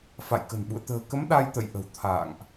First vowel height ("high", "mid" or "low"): low